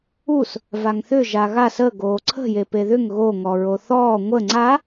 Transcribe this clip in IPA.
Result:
u s | v a ŋ θ ʏ ʒ a ɣ a s ə ɡ oː ǀʰ ə̤ j e p e ð ʏ ŋ ɣ o ŋ ɔ ɹ o θ ɔː ŋʷ ə ŋ͡ǀ a

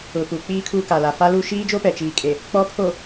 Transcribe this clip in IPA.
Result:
ʊ˨ p u˨ k͡p iː˨ kʰ u˨ k a˨ l a˨ f a˦ l u˦ ʃ iː˦ d͡ʒ o˦ p ɛ˨ t͡ʃ iː˨ kʼ e˨ | k͡p ɔ˨˦ pʰ o˨

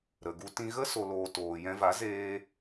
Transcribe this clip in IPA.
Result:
ɾ ə˨ ɡ u˧ t ĩ˧ ɣ ə˦ s o˨ l oː˨ t oː˨ j ɛ̃˧ v a˨˦ z eː˧

